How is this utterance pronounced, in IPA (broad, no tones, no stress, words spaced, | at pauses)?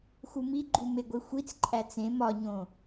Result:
xumiɡ͡ǃu meɡʷixʷit͡sǃʼæ t͡sẽ mɒɲõ